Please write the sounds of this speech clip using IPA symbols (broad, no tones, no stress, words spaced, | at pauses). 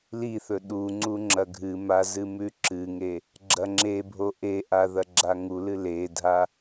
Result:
liθɵ ɗu ŋ͡ǀuŋ͡ǁɐɡʱɨma zɨmʉǁɨŋe | ɡ͡ǁɐŋ͡ǁebʱo ʔeʔa ðɐɡ͡ǁaŋulɨ ledʱa